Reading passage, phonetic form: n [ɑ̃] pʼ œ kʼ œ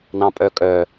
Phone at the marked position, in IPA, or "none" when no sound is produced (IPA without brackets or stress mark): ɑ̃